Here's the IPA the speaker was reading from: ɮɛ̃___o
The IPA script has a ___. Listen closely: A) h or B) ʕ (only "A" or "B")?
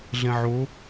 B